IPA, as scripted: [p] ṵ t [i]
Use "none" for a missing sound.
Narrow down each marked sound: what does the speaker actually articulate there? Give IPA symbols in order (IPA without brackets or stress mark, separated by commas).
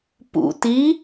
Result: p, i